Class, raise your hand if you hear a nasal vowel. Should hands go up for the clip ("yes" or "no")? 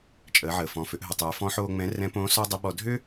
yes